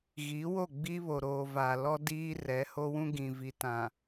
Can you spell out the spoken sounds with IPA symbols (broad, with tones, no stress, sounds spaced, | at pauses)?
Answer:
ɣ i˨˦ w o˦˨ ɡ͡b i˦ β o˨ ɾ oː˨ v a˨ l ɔ˦ d iː˦ r ɛ˨˦ h o˦ w ũ˦ ɡ ĩ˨ v i˨ t ã˨